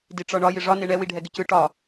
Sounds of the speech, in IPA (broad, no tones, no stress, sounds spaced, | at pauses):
d i ʈ͡ʂ ɒ ɳ ɒ j ɪ ʐ ɒ n e ɳ ɛ w i ɖʱ ɛ ɡ ɪ c ɯ ʈ ɒ